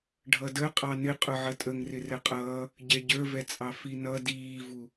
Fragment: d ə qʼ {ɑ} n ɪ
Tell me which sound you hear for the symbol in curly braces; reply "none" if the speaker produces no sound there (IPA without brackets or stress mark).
ɑ